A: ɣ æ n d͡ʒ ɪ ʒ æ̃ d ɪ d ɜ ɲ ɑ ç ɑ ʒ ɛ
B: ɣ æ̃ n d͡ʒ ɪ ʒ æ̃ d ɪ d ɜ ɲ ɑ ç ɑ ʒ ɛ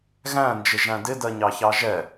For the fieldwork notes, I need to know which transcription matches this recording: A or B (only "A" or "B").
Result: B